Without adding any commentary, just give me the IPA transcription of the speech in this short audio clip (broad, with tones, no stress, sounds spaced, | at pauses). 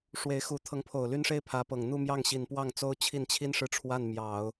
ʂ w e˧˥ ɪ̯ x u˧˥ t̪ʰ ɤ˧˥ ŋ pʰ o˨˩ ʊ̯ l y˥ n ʂ e˥ ɪ̯ pʰ ä˧˥ p ɤ˨˩ ŋ n̪ u˥˧ m j ɑ˥˩ ŋ ɕ i˨˩ n p w ɑ˥˩ ŋ t͡s o˥ ʊ̯ t͡ɕʰ i˥˩ n t͡ɕʰ i˥ n ʂ ɻ̩˥˧ ʈ͡ʂʰ w a˥˩ n m j ɑ˨˩˦ ʊ̯